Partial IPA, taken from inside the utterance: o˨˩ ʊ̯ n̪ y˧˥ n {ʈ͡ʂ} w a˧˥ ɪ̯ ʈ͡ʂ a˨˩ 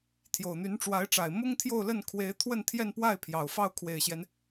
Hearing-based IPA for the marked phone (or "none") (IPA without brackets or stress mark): ʈ͡ʂ